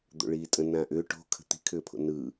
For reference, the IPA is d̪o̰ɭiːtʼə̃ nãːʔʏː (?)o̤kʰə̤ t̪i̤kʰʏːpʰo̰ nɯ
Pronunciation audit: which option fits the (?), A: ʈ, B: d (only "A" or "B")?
A